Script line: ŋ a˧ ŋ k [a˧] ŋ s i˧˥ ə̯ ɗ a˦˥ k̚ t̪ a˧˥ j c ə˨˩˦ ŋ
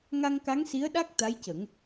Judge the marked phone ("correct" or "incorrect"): incorrect